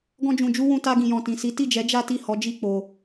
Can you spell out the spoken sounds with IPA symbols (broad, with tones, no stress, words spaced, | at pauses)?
ɡɔ̃˦d͡ʒũ˧d͡ʒu˦ wũ˧ta˧ɡĩ˨ jɔ̃˨tĩ˨ si˨˦ti˦˨d͡ʒɛ˨˦ d͡ʒa˦ti˦˨ hɔ˨˦d͡ʒi˦˨ k͡po˧